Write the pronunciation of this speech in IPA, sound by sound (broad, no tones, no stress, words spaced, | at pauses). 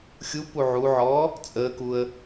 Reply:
xʲupu ʕuʕɔː | t͡sʼəːkuə̯